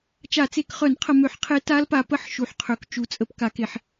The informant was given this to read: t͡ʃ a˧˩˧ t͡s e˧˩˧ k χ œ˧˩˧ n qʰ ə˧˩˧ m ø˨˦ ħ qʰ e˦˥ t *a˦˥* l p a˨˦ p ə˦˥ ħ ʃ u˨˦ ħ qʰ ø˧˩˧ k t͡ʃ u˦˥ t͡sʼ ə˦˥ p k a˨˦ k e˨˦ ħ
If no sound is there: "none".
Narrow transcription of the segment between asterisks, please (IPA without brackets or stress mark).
a˦˥